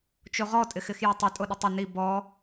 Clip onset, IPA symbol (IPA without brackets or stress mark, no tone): t͡ʃ